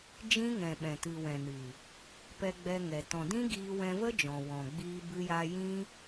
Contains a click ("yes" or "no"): no